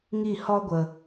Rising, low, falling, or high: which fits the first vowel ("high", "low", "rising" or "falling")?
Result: falling